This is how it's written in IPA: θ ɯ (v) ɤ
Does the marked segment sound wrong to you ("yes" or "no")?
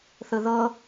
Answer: yes